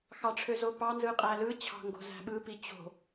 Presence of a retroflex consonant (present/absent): present